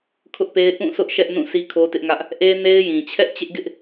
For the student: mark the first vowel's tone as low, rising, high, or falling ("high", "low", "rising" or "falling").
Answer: high